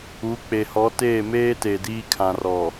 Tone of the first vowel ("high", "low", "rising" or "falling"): rising